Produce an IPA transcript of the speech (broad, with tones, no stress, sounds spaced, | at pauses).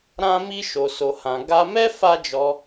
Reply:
ɾ ã˦ m i˦ ʃ o˧ s o˧ h ã˧ ɡ a˦ m ɛ˦ f a˦ d͡ʒ ɔ˧